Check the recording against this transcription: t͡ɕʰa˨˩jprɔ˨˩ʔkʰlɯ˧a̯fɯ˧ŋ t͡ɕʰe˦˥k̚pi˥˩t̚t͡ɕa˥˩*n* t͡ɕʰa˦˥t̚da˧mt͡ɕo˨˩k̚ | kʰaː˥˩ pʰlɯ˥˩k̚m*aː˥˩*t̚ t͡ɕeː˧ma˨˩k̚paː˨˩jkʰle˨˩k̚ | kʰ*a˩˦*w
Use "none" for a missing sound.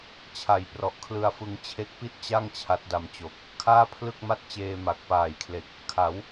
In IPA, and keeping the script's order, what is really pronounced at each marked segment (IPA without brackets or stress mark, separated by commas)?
ŋ, a˥˩, a˩˦